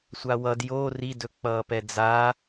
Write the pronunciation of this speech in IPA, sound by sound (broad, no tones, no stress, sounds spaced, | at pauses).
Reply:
sʷ a w ʌ d j o r i d ɵ k͡p ʌː p ɛ d͡z a